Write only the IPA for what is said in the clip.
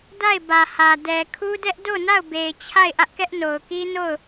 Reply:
d a˦˨ ɪ̯ b ä˨ h ä˨ d ɛ˨ kʰ u˦ d ɛ˦ ʔ d o˦˨ n a˦˨ ʊ̯ b e˨ ɪ̯ t͡ɕʰ a˦˨ ɪ̯ ʔ ä˦ ʔ k ɛ˦ ʔ n o˨ ʊ̯ k i˦ n o˦˨ ʊ̯

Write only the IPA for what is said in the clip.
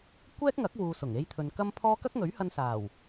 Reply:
kʷ ɛː˥ k̚ ŋ ɐ˨˥ k̚ w uː˨ s ʊ˨˩ ŋ e˥ j t̪ʰ ɵ˧ n k ɐ˥ m pʰ ɔː˥ k ɐ˥ k̚ ŋ ɵ˨˥ ɥ h ɐ˧ n s aː˨˩ w

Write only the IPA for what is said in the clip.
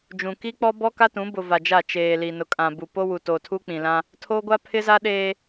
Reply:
d͡ʒ ũ˨ k i˦ k͡p ɔ˦ b ɔ˦ k a˦ t ũ˨˦ b ʊ˨ v a˨ d͡ʒ a˦˨ t͡ʃ eː˨ l i˨ n ʊ˨ kʼ ã˨ b u˨ p o˦ w u˨ t o˨ tʰ u˦ k͡p ĩ˨ l ã˦ | tʰ o˦ ɡʷ a˦ pʰ ɪ˦ z a˦ ɗ eː˦

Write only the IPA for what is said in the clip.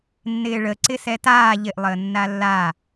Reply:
nː ɪː ɭ ə ǀ ɪ s ɛ t aː ʎ ɪ ʔ lˠ əː nː a lː a

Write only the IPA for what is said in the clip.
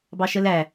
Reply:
b ɑ ʃ ə l æ

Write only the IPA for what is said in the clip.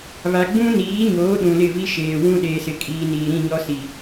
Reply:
β a˨ ɡ͡b ũ˦ n iː˨˦ ɲ oː˨˦ ɗ ũ˨ l ɪ˦˨ v i˦ ʃ eː˨ w ũ˦ ɗ eː˨ s ɪ˨ kʼ iː˨ n iː˨ ɾ ĩ˦˨ ɲ ɔ˦ s i˨

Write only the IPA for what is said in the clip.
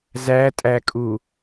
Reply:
z æ tʼ æ kʼ u

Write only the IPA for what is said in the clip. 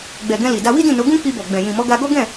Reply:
ɡ͡b ɛ˨ ɡ ɛ̃˧ l i˨ d a˧ w i˦ d ĩ˦˨ n o˨˦ ɡ ũ˦ k͡p i˧ b ɔ˨ ɡ͡b ɛ̃˨ j ĩ˨ m ɔ˨˦ ɡ a˧ ɡ ɔ˦ ɡ ɛ̃˦˨

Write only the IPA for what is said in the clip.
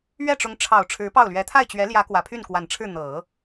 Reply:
ɥ ɛ˥˩ ʈ͡ʂ ʊ˧˥ ŋ ʈ͡ʂʰ ɑ˨˩ ʊ̯ ʈ͡ʂʰ ɻ̩˧˥ p ɑ˥˩ ʊ̯ l ɥ ɛ˧˥ t̪ʰ a˥˩ ɪ̯ t͡ɕ ɥ ɛ˧˥ l j ä˧˥ k w ä˨˩ pʰ y˥˩ n k w a˨˩ n ʈ͡ʂʰ ɻ̩˥˩ n̪ ɤ˨˩˦

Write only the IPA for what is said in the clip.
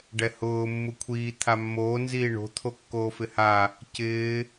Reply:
ɖ ɛ h ʊː mː u kʷʰ iː t̪ʰ a mː oː n z iː ɳ o̤ t̪ʰ o kː oː f ɪ h a | c ɪː

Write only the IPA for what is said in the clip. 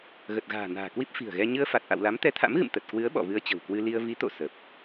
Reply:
ɣ ə˨˩ t̚ ɣ a̤ː˨˩ n a̤ː˨˩ k w i˦˥ p̚ f i̤˨˩ ə̯ ɣ ɛ˧ ɲ ɨ˧ ə̯ f a˨˩ t̚ ʔ a̰˧˨ w l a˨˦ m t̪ ɛ˨˦ t̪ʰ a̰˧˥ m ɣ ɨ̰˧˨ m t̪ ə˨˩ t̚ k w ɨ˨˦ ə̯ ɓ ɔ̰˧˨ v ɨ˧ ə̯ t͡ɕ ə̤˨˩ w k w ɨ˧ l i˧ ə̯ v i˨˦ t̪ o̰˧˨ s ə˨˩ p̚

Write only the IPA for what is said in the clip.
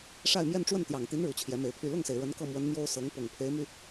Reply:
ʂ a˥˧ ɪ̯ m j ɛ˥˧ n ʈ͡ʂ w ə˥˩ n t̪ j ɑ˨˩ ŋ t̪ i˧˥ n ɻ u˨˩ t͡ɕʰ j ɛ˧˥ m e˧˥ ɪ̯ pʰ y˥˧ l ʊ˥˩ ŋ s e˩ ɪ̯ ɻ ə˧˥ n k ɤ˥˩ m w ə˧˥ n m j o˥ ʊ̯ s ɤ˧˥ ŋ p ʊ˨˩ ŋ pʰ e˧˥ ɪ̯ m y˧

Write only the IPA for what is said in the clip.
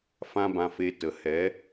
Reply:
f ã˦ b ã˧ f e˧ t ə˨ h ɛ˨˦

